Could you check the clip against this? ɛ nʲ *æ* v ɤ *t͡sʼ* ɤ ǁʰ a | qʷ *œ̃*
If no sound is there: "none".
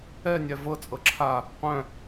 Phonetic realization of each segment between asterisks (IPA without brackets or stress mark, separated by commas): æ, t͡sʼ, œ̃